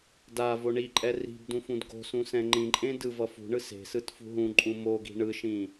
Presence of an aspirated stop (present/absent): absent